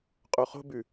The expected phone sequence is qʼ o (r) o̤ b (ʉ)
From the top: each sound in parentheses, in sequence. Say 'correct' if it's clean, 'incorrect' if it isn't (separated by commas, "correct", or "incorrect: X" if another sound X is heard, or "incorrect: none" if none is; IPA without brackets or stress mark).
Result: incorrect: χ, correct